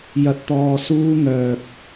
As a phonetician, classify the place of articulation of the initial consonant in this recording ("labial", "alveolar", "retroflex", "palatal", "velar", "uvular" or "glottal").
palatal